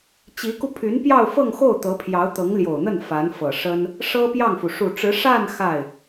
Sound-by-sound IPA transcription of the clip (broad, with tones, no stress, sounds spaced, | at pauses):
t͡ɕ i˧˥ k u˧ pʰ y˧˥ n p j ɑ˥˧ ʊ̯ f ɤ˥˧ ŋ x o˥˩ ʊ̯ t̪ ɤ˧˥ pʰ j ɑ˧˥ ʊ̯ t̪ ɤ˧˥ ŋ l j o˨˩ ʊ̯ n̪ ə˥˩ n f a˧˥ n f ɤ˨˩ ʂ ə˥ n | ʂ ɤ˥ p j ɑ˥˩ ŋ f u˩ ʂ u˨˩ ʈ͡ʂ ɻ̩˧˥ ʂ a˥˧ n x a˥˩ ɪ̯